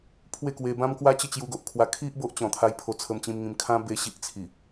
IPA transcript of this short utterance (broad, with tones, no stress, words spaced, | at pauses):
pʰwe˥˧kwe˧ bã˦mkwa˦t͡ɕə˥˧ t͡ɕju˧ɡo˨ʔkʰwa˧ kʰi˦ʔ bo˦ʔt͡ɕɔ̃˨˩t̪ʰa˧j pʰo˧t͡sʰə˧mt͡ɕĩ˧mŋĩ˧m kʰã˦ be˧ ɕi˦ʔt͡sʰi˨˩